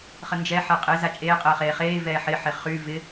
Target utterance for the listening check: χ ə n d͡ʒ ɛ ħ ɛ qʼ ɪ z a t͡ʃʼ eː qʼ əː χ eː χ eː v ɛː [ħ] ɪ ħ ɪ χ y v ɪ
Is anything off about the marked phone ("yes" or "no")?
no